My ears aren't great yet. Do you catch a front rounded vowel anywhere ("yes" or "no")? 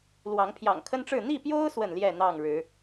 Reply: no